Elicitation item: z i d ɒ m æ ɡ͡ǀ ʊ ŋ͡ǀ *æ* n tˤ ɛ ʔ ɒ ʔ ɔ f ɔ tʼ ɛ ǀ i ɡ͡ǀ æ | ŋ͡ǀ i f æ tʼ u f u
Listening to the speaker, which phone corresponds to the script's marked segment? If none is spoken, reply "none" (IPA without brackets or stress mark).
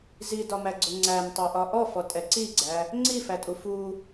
æ